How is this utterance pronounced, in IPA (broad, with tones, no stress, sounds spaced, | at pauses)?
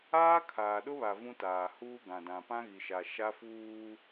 aː˦ kʰ aː˨ ɗ ʊ˦ β a˨ v ũ˦ t aː˨ h uː˦ ɡ ã˨ d ã˨ p ã˦ ɣ i˨ ʃ a˨ ʃ a˦ f uː˦